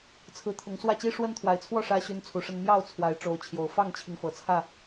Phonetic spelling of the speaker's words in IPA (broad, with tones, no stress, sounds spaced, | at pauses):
t͡sʰ ɹ̩˨˦ t̪ʰ ʊ˨˦ ŋ s w ä˥˨ t͡ɕ i˦ ʂ w ə˦ n t̪ʰ w a˨˩ ɪ̯ t͡sʰ w ɔ˥˨ ʂ ä˦ ɕ y˦ n t͡sʰ u˨˦ ʂ ə˦ n m j ɑ˥˨ ʊ̯ t͡sʰ w a˨˦ ɪ̯ ʈ͡ʂ o˨˦ ʊ̯ t͡ɕʰ j o˨˩ ʊ̯ f ɑ˥˨ ŋ t͡ɕʰ i˩ ŋ f ɤ˨˩ t͡sʰ ä˥˨